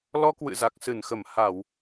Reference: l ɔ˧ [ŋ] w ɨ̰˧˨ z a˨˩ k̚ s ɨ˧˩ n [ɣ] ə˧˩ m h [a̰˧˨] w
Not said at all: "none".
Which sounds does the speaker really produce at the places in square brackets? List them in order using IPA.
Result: k, x, a˧˩˨

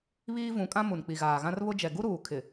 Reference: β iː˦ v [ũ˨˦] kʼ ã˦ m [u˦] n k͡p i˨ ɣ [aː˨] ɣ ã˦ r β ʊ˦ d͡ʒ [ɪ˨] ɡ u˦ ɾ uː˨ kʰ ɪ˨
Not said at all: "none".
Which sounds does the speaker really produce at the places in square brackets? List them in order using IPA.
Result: ũ˨˦, u˨, aː˨, ɛ˨

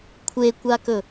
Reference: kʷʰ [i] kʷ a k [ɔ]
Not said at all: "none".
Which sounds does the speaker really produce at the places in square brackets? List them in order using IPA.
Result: e, ɵ

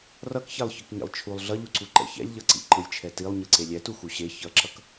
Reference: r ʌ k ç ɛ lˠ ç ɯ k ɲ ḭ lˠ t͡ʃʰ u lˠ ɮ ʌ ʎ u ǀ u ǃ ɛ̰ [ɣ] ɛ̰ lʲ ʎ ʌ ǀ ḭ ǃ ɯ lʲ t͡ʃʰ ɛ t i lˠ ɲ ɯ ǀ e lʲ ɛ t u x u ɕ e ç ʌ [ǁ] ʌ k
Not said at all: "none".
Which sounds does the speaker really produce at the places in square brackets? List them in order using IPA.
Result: ç, ǁ

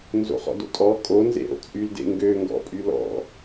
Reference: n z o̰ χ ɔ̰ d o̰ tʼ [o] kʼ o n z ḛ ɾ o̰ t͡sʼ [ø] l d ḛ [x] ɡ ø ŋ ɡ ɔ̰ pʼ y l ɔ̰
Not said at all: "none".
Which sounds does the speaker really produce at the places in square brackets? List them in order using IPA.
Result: ɔ, y, ŋ

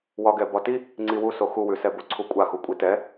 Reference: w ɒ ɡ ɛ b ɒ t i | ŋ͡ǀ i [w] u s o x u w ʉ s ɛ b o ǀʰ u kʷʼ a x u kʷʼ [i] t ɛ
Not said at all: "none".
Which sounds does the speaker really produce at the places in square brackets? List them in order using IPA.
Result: w, i

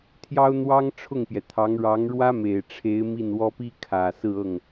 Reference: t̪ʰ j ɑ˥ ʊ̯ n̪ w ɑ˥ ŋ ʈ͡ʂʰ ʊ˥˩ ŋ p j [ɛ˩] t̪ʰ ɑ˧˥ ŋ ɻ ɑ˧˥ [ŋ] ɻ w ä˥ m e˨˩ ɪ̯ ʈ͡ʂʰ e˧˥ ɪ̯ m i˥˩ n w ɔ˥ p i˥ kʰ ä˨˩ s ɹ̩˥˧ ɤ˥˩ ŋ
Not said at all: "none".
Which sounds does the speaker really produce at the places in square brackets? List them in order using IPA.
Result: ɛ˩, ŋ

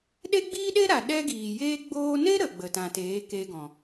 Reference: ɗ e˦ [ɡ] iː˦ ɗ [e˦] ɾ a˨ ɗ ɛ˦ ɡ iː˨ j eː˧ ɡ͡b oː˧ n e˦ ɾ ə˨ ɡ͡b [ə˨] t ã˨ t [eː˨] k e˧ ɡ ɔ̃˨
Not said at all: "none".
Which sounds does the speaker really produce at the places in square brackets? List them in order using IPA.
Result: ɡ͡b, e˦, ə˨, eː˨˦

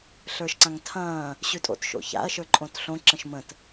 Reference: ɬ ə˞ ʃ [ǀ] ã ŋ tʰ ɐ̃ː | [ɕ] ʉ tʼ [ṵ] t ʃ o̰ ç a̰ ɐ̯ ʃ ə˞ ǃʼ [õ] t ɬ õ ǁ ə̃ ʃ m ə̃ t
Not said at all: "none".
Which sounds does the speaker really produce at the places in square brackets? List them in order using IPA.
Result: ǀ, ɕ, o̰, õ

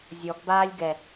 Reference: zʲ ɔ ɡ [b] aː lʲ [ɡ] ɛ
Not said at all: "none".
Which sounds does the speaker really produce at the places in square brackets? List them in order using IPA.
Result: b, ɡ

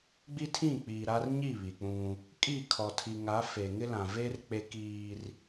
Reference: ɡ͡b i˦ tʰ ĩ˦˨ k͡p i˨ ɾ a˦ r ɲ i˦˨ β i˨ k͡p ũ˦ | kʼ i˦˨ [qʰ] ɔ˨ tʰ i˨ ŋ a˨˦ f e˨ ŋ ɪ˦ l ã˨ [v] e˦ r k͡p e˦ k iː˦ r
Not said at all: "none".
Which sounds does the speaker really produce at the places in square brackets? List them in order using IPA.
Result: kʰ, v

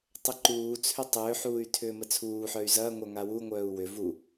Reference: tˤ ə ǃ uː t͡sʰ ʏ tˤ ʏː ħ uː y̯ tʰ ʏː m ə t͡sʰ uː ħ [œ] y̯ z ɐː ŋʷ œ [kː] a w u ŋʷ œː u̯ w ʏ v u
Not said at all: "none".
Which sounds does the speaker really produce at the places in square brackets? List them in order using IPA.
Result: œ, ŋ

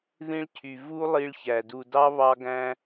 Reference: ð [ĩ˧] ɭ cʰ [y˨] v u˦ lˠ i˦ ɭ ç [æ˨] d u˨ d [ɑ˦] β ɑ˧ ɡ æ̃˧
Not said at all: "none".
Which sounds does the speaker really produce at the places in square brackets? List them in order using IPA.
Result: ĩ˧, y˨, æ˨, ɑ˦

